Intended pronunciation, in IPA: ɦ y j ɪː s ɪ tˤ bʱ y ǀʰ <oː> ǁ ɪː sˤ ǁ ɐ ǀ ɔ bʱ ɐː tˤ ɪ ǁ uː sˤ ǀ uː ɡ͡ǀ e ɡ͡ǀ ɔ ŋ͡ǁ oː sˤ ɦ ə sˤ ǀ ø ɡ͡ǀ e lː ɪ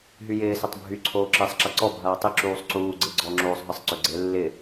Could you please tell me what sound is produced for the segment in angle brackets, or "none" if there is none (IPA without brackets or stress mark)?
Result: oː